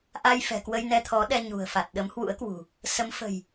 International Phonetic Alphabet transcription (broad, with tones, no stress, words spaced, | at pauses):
ʔa˧jfɛ̤˨˩kwə˧j nɛ˧t̪ʰɔ˨˦ɗɛ˧ ɲṳ˨˩ə̯fa˨˩t̚ ɗə˨˦mhwṵ˧˥ə̯kwṳ˨˩ | sə˨˦mfə̤˨˩j